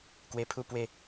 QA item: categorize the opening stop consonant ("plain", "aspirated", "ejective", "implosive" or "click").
plain